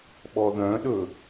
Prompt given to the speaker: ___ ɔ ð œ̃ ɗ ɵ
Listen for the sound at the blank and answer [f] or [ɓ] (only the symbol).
ɓ